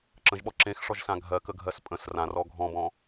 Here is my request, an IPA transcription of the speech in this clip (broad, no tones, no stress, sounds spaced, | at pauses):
ǁ ə̃ ʒ ɓ ɔ ǁ ẽ x ʂ ɔ ʒ s ã ɡʱ ɜ k ə ɡʱ ɜ s pʼ ə̃ s r ã r ɔ ɡʱ ɔ̃ b ɔ̃